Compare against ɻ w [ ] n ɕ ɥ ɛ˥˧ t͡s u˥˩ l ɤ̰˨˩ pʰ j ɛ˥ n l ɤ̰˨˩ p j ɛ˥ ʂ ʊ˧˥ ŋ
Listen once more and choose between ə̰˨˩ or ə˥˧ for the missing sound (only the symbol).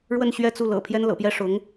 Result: ə˥˧